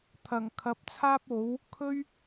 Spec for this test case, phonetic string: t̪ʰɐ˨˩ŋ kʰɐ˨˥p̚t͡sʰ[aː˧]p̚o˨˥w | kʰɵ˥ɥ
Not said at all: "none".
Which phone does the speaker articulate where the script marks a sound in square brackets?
aː˥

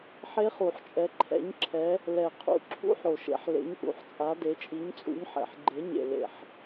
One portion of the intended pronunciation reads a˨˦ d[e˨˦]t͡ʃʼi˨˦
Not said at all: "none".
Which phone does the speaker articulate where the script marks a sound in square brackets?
e˨˦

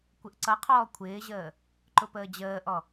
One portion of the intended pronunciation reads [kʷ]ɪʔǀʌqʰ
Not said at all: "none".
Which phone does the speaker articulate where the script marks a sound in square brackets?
kʷ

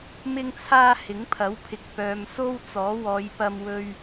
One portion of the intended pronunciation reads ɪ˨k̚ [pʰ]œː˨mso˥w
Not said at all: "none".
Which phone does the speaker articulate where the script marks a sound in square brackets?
p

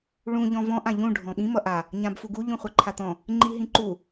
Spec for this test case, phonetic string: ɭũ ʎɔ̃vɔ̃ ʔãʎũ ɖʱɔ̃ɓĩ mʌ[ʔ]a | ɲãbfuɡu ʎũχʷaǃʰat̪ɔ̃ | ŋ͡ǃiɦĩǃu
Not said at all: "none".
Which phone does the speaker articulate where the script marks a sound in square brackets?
ʔ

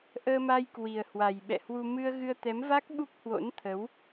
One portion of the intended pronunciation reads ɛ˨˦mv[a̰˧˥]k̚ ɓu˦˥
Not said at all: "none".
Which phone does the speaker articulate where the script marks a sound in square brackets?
a˦˥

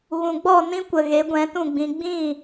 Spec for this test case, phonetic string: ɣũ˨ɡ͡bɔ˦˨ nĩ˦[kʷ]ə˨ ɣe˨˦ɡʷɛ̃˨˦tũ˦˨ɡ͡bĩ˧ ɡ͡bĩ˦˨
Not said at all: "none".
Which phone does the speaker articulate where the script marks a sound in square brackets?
kʷ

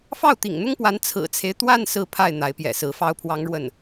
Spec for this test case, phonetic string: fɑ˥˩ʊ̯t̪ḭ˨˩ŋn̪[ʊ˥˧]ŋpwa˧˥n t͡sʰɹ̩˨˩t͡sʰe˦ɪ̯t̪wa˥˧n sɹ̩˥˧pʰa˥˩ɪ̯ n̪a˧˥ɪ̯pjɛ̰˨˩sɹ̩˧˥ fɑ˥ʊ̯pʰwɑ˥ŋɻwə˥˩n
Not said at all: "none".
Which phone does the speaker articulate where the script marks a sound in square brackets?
ʊ˥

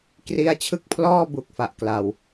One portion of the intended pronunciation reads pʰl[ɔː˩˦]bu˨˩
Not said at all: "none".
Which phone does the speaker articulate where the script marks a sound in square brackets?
ɔː˥˩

